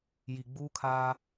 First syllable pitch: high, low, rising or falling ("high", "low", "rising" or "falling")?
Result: low